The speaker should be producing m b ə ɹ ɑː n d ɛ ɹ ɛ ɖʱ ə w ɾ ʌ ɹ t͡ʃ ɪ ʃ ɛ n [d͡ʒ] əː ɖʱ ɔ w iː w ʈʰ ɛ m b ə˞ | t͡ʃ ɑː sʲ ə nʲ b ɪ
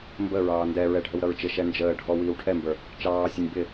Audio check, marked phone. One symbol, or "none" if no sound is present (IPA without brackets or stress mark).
d͡ʒ